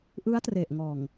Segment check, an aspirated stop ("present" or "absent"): absent